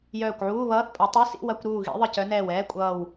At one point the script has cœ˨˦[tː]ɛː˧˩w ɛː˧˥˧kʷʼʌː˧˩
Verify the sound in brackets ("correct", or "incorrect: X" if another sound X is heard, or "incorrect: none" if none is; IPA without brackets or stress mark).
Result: incorrect: n